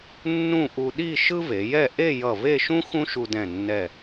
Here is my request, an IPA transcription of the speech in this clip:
nː ũ˥˧ ʔ u˧ ɗ i˥˧ ʃ ɯ˥ v e˩˧ j ɛ˥˧ ʔ e˥˧ j ʌ˧˩ v e˥˧ ʃ ũ˥ x ũ˥ ʃ u˧ d ɛ̃˧˩ nː ɛ˧˩

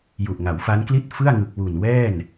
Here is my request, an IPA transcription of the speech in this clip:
j u˨˩ ʔ ŋ a˩˦ w f a˦˥ n k l i˥˩ t̚ f ɯ˥˩ a̯ ŋ ɯ˨˩ k̚ w u˨˩ n w ɛː˥˩ n

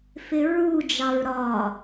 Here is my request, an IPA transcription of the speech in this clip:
f ɪ ɹ u d͡ʒ ɑ ɹ ɾ ɒ

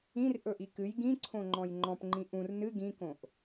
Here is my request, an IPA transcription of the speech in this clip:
ĩ r ʔ ɵ ʔ i k ɨ j ɡ ĩ ǀʰ õ ŋ͡ǃ ɔ̃ j ŋ͡ǃ ɔ̃ p ŋ͡ǃ ĩ ʔ ũ r n ɨ ɡ ĩ k õ ʔ

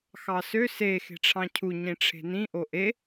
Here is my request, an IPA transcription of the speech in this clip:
x ɑ s ø s e x e̤ ʈ͡ʂʰ ɑ̃ cʰ u ɲ ĩ ʈ͡ʂʰ e̤ n ĩ ʔ o ʔ e

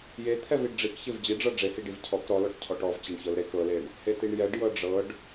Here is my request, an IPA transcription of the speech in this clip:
j e t̪ʰ ɛ v i ɖ ɖ͡ʐ i k ç e v d͡ʑ i ɖ͡ʐ ɤ ɖ͡ʐ e h i ɖ i v cʰ ɔ k ɾ ɔ l ɔ ʈ cʰ ɔ ʈ ɔ v t͡ɕ e ɳ ç ɤ l ɾ e k ɤ l e ɳ | h e t̪ i ɳ j ɛ ɖ j ɤ ɖ͡ʐ ɤ ɖ

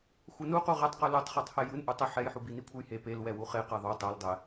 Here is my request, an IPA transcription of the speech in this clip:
xʷ ɤ n u q u ʁ ɛ tˤ q u l o tˤ χ ɤ tˤ h ɛ j ɯ n ʔ u tˤ ɛ ħ ɛ j ħ u b i n i kʷʰ ɯ j h e p e l w ɛ w u χ e q ɛ ðˤ o tˤ ɛ l dˤ ɛ

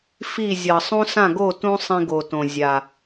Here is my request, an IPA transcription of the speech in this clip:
f i˥˩ zʲ ʌ˨˩ sˤ ũ˦ s ã˥˩ ɡ o˥˩ t ũ˦ sˤ ĩ˦ ɡ o˨˩ t õ˨˩ zʲ a˨˩

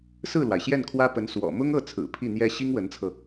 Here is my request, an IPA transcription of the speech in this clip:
s ɹ̩˥˩ l w a˩ ɪ̯ ɕ j ɛ˥˩ n kʰ w ä˥ p ə˧˥ n s w ɔ̰˨˩ m ʊ˥ ŋ ɤ˥˩ t͡sʰ ɹ̩˨˩ pʰ i˥˩ n̪ j ɛ˥ ɕ i˥ ŋ w ə˧˥ n t͡sʰ ɤ˧

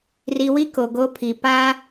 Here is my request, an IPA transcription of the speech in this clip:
r i˨ w i˦ k o˨ ɡ o˦ pʰ i˨ p a˦

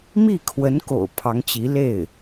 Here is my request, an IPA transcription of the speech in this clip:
m i˥˩ kʰ w ə˧˥ n k o̰˨˩ ʊ̯ pʰ ɑ˧˥ ŋ t͡ɕ i˧˥ l e˥˩ ɪ̯

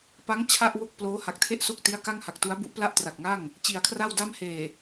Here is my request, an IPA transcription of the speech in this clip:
p a˦˥ ŋ t͡ɕʰ a˥˩ ʔ w o˥˩ k̚ p l oː˦˥ h a˨˩ k̚ tʰ e˥˩ ʔ s o˥˩ k̚ t i˦˥ a̯ k a˥˩ ŋ h a˨˩ k̚ t u˦˥ a̯ b u˦˥ ʔ p l a˥˩ ʔ t r a˨˩ k̚ ŋ a˥˩ ŋ | t͡ɕ i˩˦ a̯ kʰ r a˥˩ w d a˥˩ m h eː˨˩

